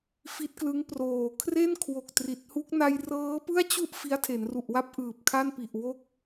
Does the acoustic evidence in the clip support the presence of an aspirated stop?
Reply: yes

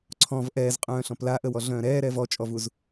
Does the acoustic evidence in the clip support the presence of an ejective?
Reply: yes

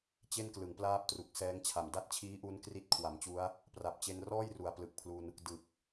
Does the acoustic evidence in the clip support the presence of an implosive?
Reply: no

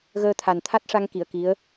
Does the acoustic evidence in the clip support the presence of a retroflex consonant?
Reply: yes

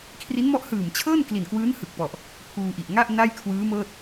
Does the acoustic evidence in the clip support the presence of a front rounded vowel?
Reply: no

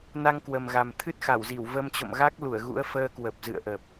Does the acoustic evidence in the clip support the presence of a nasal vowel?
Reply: no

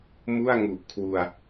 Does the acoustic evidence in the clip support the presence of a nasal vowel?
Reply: no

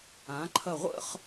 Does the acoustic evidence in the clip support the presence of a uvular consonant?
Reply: yes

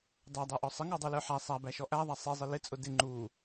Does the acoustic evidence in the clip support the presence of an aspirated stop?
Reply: no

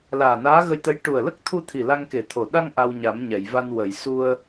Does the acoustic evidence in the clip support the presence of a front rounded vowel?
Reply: no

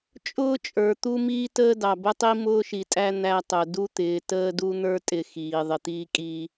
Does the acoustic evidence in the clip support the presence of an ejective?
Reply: yes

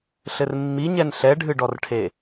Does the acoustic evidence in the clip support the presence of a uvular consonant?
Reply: no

